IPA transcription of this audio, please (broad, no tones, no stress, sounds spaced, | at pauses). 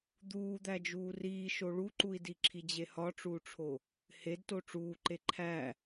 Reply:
d̪ uː d̪ æ d͡ʒ uː r iː ʃ o ɭ u ǃ u i̯ d i ǁʰ i d͡ʑ e h ɒ ʈ͡ʂ uː ʈ͡ʂʰ o | h e d t o ʈ͡ʂ uː ǃ e ǃʰ æ